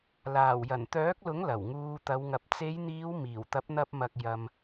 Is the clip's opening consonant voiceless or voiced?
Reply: voiced